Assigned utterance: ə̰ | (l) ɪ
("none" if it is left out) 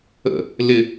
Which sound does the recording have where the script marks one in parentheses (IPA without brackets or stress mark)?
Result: l